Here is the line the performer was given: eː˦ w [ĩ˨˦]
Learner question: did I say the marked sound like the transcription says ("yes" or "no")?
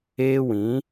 yes